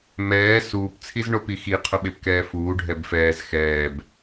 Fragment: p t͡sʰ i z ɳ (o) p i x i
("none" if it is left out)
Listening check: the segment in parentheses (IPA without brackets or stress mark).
o